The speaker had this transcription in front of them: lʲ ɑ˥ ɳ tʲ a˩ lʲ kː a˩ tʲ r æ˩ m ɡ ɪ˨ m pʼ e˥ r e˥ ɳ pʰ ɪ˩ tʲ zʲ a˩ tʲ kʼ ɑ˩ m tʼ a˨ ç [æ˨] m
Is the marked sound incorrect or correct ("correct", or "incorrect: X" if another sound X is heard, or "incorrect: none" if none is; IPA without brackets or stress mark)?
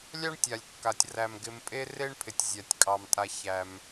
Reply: correct